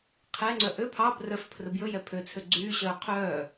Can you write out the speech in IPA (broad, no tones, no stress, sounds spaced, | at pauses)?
qʰ ɛ ŋ͡ǀ œ ʔ ø pʰ ɑ b r œ f pʰ r ɵ b j ɵ j ɛ pʰ ø t͡sʰ ø ɡ͡ǀ yː ɕ œː qʰ œː